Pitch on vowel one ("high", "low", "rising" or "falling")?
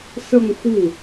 falling